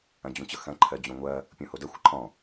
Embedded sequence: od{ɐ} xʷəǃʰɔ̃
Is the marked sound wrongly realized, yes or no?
no